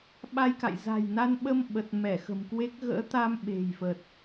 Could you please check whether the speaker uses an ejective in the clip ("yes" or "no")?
no